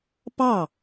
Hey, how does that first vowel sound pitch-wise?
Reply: falling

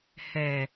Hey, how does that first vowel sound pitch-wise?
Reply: low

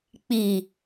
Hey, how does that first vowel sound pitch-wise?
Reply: low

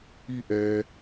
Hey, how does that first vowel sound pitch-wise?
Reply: high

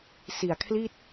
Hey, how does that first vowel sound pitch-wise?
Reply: low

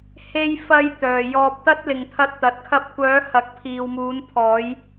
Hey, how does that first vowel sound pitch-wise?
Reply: high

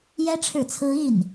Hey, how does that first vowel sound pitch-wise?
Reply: high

